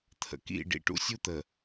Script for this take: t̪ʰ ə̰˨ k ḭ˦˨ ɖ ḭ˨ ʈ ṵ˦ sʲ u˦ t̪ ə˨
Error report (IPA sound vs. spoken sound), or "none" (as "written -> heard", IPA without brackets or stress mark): none